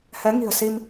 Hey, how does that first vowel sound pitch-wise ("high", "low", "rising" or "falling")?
rising